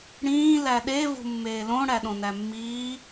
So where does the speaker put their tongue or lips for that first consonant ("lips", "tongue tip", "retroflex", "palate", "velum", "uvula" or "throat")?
retroflex